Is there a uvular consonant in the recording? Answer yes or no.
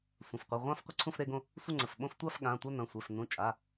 yes